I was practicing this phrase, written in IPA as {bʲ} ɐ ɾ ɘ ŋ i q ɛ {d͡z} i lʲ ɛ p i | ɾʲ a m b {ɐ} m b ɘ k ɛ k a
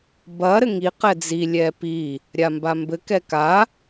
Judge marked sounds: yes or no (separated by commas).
no, yes, no